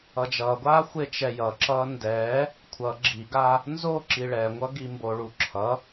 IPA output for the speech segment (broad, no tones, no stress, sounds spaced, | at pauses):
ʌ d͡ʒ ʌː ɡʷ aː xʷ e t͡ʃ ɛ j ʌ ǁ ʌː n d ɛː | kʷʰ ʌ ɡ͡ǁ i ɡ aː | n z o ǁ i ɭ ɛ ŋʷ ʌ ɡ i m b o ɭ u ǁʰ ʌ